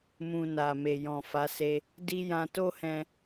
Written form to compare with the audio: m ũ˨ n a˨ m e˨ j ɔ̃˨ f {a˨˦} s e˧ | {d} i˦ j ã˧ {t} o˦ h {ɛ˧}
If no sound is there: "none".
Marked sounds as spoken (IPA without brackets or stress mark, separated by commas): a˨˦, d, t, ɛ̃˧